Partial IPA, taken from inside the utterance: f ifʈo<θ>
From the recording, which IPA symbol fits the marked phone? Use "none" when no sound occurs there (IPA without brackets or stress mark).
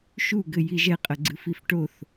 θ